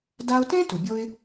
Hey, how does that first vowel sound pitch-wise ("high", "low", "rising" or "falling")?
high